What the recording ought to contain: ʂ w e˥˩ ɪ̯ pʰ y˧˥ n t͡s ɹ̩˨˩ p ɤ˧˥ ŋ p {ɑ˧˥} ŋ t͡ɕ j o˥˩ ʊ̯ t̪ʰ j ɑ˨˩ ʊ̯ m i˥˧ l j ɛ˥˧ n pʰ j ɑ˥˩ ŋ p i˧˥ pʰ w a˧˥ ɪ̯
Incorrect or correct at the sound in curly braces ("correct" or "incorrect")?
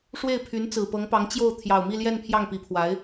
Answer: correct